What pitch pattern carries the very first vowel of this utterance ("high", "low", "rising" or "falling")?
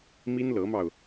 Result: high